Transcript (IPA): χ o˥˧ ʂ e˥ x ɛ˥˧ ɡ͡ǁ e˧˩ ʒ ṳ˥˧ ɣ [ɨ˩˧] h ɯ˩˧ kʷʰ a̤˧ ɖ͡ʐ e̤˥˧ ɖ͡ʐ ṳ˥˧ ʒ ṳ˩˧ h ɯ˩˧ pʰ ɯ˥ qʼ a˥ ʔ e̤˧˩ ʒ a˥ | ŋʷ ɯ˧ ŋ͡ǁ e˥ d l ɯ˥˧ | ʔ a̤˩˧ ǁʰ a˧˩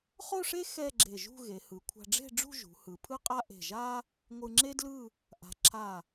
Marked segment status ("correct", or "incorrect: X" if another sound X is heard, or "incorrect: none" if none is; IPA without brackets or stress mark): incorrect: e˩˧